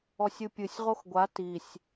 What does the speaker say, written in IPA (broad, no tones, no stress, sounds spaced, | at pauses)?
ɔ sʲ ɨ pʲ ɨ sʲ ʁ o x ɡʷ a t i sʲ